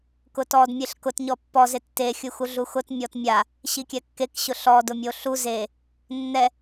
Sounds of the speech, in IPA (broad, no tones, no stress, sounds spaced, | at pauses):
k ʊ t ɔ d mʲ e ɬ k ʊ t ɲ ɔ pː ɔ z e tː e xʲ u x u ɮ u x ʊ t mʲ ɔ t mʲ a | ɕ i kʲ ɛ kː e k ɕ ʊ ɬ ɔ d ʊ mʲ o ɬ u z e | nː ɛ